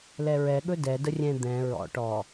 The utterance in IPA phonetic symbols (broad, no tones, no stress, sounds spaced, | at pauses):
l ɛ ɹ ɛ ɠ ɵ d ɛ d ə rʲ ɛ̃ d̪ ɛ̃ ɹ ɔ̰ ʈ ɔ